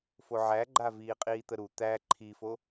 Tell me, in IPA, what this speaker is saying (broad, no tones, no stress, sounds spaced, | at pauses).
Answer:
f o ʕ æ ɡ͡ǃ a v iː qʼ iː t̪ ə ɾ u t̪ æ ǃʰ i f o